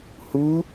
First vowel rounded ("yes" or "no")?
yes